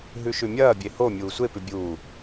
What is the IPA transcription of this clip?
ɦʉʃʉmʲɐːbʲe ho mʲuːsʷepʉ bʲuː

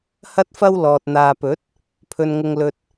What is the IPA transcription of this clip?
hɐ˥t̚fɐ˥wlɔː˨t̚ n̪aː˨pɵ˨˥t̚ | pʰɵ˧nŋʊ˧ŋlɵ˧t̚

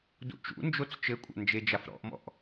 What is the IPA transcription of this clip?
dṵt͡ʃṵ nd͡ʒot͡st͡ʃɘkʷʼa̰ nd͡ʒed͡ʒafɾɔ̰ʔ mɔ̰ʔ

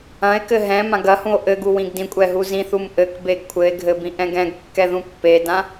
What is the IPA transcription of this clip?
ɐ̃e̯kɘ ɦɛ̃ mãɡɐhũo̯ ʔɘɡu wĩɡdĩkʷʼɛ ɦuzĩθum ʔɘkbeɡ kʷʰɘe̯ɡʱɘ bĩʔɛ̃ɡɛ̃ɡkːɛ ðũpːedã

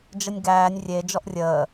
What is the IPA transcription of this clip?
d͡ʒənʲɡæːnʲ rʲe d͡ʒɔʔrʲəː

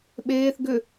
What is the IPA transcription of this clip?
ɓeːθ ɡʏ

